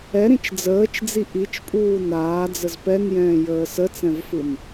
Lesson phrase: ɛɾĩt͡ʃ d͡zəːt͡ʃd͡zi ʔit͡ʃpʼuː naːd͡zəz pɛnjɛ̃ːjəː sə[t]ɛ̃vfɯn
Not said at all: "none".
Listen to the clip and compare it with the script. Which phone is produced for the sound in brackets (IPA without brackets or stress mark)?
t͡s